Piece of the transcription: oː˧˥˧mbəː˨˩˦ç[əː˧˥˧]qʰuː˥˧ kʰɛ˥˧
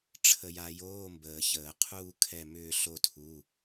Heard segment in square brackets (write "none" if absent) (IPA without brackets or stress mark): əː˨˩˦